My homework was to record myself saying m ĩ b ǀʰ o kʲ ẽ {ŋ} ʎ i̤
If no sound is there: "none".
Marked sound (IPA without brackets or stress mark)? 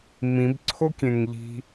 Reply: ŋ